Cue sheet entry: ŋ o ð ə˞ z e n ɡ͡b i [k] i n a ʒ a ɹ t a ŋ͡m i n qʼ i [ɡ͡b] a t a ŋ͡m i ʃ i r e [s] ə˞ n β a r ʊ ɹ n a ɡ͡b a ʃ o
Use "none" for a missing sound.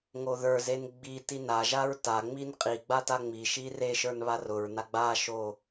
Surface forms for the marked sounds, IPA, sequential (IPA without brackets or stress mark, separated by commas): t, ɡ͡b, ʃ